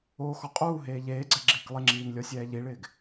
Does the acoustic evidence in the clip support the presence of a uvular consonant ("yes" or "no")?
yes